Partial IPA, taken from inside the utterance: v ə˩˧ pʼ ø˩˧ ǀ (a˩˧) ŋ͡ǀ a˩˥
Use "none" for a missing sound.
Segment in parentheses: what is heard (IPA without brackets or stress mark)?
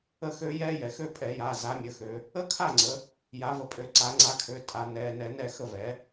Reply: a˩˧